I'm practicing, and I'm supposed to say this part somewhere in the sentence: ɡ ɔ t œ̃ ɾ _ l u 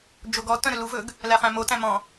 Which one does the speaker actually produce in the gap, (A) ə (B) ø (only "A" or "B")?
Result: B